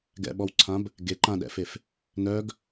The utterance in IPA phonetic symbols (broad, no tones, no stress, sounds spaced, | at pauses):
ɡ ɛ̰ ɓ ɔ w ǀʰ ã b | ɡ e ǃ ã ɗ ɛ̰ f e f | n œ ɡ